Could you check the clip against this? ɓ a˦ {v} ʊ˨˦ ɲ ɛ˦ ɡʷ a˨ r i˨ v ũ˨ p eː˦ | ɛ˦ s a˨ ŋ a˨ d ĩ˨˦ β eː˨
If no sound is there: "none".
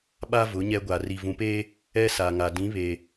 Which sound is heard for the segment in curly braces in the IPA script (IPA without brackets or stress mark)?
v